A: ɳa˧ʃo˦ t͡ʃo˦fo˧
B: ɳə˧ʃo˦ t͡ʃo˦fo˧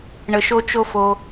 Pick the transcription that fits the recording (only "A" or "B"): B